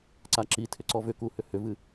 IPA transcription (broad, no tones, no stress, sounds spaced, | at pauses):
ǀ a ǁ i tʰ ʏ ǀ ɔ v ʏ k u h ʏ h ʏ v ɨ